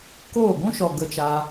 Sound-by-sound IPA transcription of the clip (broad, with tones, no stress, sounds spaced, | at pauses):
k oː˦˨ ɡʷ ũ˦ ʃ ɔ˨ ɡ ə˧ t͡ʃ a˧